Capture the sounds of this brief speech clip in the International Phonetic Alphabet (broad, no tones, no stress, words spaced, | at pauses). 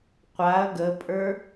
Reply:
qʷaɐ̯ ɡəpʼə˞